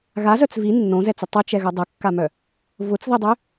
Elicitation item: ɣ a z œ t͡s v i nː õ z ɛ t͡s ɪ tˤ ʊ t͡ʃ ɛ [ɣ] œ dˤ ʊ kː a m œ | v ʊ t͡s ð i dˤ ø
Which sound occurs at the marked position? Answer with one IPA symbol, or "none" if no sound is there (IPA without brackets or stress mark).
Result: ɣ